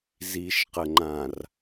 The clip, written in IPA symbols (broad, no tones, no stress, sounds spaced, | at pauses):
z i ʃ q ə ŋ͡ǃ ã r